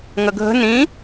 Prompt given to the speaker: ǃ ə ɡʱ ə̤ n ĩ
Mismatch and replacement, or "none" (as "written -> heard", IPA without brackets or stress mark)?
ǃ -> ŋ